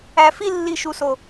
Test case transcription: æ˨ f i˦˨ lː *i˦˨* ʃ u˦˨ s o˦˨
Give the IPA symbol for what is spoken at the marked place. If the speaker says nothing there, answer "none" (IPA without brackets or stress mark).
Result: i˦˨